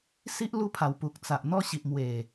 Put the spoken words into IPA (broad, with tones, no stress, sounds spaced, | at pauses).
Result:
s i˦ ʔ l u˧ pʰ a˨˩ w p u˨ k̚ t͡s a˨ ʔ n̪ ɔ˥˧ ɕ i˨ ʔ m w e˨˩